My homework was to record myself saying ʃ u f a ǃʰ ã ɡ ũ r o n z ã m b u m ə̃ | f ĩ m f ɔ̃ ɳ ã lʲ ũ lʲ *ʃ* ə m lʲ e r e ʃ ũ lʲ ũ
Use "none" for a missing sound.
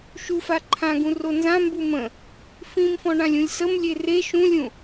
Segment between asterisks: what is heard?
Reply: s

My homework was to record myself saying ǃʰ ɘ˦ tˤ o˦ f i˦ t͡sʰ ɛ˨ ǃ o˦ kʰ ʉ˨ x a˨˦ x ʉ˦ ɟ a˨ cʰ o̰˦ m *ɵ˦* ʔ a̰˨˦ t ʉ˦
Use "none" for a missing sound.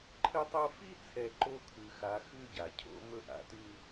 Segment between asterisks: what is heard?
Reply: ɵ˦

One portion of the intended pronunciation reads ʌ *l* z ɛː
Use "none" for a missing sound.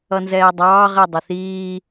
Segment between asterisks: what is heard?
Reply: n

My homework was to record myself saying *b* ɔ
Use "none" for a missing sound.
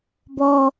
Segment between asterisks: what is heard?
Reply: b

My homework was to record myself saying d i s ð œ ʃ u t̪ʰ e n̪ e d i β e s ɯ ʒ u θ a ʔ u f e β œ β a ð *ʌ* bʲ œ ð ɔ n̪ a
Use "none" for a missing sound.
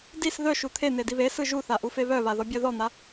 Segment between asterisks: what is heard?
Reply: ɔ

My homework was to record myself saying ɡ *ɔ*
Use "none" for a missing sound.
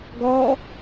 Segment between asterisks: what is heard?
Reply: ɔ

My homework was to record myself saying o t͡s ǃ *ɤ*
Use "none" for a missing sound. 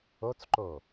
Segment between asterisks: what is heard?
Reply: o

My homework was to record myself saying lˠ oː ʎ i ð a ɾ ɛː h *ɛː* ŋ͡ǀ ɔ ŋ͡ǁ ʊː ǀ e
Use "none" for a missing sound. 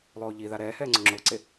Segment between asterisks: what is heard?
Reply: ɛː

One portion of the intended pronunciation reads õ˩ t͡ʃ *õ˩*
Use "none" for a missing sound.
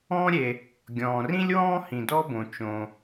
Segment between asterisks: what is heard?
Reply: õ˩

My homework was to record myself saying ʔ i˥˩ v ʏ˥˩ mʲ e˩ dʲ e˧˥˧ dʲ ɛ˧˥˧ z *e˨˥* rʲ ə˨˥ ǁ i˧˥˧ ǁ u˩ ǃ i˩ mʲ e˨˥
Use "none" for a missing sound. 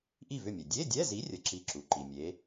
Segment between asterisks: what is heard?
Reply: i˨˥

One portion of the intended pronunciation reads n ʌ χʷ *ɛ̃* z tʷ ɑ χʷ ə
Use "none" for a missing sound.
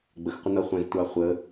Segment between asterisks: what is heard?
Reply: ɛ̃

